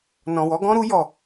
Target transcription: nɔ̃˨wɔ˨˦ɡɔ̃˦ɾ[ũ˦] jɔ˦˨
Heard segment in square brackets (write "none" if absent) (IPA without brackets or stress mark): u˦